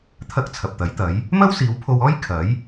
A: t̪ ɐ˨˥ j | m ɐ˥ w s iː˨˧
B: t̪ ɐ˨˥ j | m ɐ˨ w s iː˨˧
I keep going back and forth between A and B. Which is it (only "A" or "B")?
A